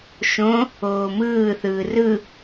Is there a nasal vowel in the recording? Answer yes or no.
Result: yes